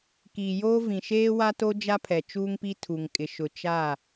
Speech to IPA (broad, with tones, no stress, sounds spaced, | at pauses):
k iː˨ j oː˦ v ĩ˨ ʃ eː˦ w a˦ t o˦ d͡ʒ a˦ pʰ ɛ˨ t͡ʃ uː˦ ŋ p i˦ tʰ u˨ ŋ kʼ ɪ˨ ʃ ʊ˨ t͡ʃ a˦˨